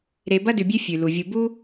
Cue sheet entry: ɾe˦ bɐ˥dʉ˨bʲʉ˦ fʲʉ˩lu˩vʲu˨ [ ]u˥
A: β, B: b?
B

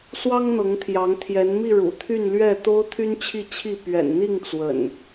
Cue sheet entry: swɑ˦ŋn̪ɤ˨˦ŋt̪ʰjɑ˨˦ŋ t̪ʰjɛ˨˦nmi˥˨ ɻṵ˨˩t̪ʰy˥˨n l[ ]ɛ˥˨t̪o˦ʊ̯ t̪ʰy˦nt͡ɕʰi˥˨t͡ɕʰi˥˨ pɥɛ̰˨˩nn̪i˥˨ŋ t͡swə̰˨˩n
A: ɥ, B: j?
A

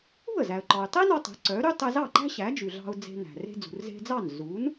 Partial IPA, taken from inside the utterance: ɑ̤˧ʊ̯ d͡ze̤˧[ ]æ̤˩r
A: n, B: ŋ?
A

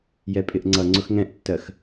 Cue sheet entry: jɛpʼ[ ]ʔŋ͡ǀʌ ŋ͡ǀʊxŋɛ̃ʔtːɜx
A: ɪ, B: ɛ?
A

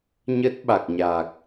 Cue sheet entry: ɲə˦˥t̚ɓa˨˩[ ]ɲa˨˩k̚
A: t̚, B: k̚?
B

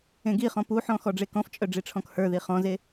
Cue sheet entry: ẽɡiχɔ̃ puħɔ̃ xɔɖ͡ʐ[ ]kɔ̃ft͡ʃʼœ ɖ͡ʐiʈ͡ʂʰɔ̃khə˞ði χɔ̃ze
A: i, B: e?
B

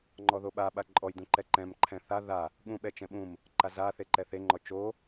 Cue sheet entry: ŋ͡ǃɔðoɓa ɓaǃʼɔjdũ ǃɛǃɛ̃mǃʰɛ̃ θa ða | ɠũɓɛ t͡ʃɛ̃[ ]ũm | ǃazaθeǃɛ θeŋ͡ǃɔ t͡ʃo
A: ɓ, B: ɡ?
A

